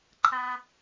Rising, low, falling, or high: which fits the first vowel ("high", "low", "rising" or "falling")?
high